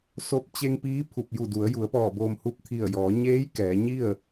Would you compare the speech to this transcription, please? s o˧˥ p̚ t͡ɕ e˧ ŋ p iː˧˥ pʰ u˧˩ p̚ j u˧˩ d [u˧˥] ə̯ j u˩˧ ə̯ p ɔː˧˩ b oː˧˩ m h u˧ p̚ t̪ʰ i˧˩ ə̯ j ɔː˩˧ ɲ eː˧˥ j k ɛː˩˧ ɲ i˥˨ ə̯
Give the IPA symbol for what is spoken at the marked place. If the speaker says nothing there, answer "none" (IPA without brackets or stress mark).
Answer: u˩˧